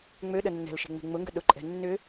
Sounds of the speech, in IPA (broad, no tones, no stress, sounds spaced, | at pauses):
ŋ͡m ø ɗ ə nː ɛ̤ l ʃ e̤ ŋ͡m e̤ ŋ͡m ʊ ŋ ɡ ə ɗ ʊ ǃʼ ɛ̤ nː ʏ